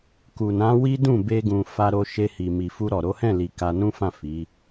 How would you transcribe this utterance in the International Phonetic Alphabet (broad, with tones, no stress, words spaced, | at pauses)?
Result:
ku˨nã˨˦ wi˦dũ˦˨ be˧ɡũ˨ fa˧ ɾo˧ʃe˧hi˨ mi˨fu˧ɾɔ˨ ɾo˨˦hɛ̃˦˨li˨ ka˧nũ˦fã˦˨ fi˨˦